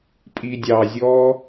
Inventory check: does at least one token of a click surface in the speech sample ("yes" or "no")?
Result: no